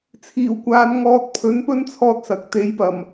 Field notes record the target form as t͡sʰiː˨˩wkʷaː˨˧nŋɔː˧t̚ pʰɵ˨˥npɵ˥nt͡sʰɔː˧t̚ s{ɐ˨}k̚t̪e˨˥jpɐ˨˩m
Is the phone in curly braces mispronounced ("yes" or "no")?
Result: no